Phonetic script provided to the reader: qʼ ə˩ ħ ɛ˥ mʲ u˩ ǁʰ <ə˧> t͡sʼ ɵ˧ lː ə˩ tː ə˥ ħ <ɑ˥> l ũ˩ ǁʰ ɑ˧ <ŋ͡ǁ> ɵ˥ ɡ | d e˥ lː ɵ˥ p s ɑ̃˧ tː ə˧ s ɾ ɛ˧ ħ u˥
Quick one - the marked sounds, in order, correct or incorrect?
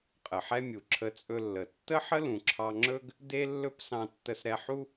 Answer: correct, incorrect: ə˥, correct

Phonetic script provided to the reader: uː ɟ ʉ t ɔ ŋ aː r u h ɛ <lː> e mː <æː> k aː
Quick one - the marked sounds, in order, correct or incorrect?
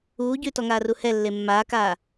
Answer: correct, incorrect: aː

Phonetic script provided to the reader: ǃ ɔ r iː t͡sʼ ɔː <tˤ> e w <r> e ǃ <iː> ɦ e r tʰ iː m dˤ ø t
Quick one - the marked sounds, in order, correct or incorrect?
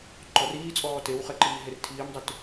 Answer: incorrect: t, incorrect: χ, correct

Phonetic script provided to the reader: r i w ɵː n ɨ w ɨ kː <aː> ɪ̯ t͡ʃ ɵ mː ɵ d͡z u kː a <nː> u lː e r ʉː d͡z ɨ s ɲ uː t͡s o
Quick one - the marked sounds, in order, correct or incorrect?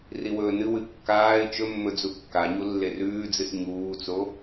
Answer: correct, incorrect: ɲ

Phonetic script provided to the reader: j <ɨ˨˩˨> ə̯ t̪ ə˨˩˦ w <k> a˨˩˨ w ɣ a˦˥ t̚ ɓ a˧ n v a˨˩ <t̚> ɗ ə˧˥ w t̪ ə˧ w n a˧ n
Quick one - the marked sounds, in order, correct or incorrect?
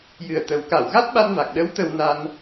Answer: incorrect: ɨ˨˩, correct, incorrect: k̚

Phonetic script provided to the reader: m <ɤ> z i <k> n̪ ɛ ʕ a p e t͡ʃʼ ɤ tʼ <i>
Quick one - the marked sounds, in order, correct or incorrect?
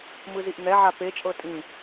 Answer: incorrect: ɯ, incorrect: ʔ, incorrect: ĩ

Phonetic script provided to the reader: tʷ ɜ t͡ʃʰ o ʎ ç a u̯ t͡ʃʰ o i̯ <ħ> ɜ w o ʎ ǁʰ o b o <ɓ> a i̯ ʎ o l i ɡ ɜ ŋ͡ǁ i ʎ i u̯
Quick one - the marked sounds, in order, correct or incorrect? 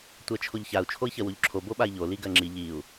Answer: incorrect: ç, correct

